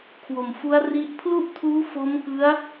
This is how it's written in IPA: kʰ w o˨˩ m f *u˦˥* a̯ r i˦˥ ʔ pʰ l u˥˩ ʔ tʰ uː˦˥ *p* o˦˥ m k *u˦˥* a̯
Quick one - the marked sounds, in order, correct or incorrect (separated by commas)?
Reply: correct, incorrect, incorrect